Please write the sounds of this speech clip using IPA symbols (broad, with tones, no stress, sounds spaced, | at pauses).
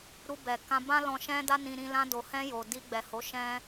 ɾ u˧ b ɛ˨ k ã˧ b ã˦ l ɔ̃˧ ʃ ɛ̃˦ d a˦ n ĩ˧ ɾ ĩ˧ l ã˧ d o˨ h ɛ̃˧ j o˨ d i˧ ɡ͡b ɛ˨ h o˨˦ ʃ ɛ̃˦